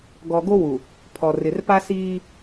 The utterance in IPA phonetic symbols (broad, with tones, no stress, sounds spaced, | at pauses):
ɡ ɔ˨ ɡ o˦ w u˨ | pʰ ɔ˨ r ɪ˨ r p a˦ s iː˦